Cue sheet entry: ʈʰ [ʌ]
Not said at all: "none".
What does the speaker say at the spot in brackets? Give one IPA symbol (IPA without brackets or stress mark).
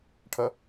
ʌ